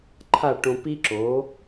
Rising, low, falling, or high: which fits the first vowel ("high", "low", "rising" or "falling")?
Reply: falling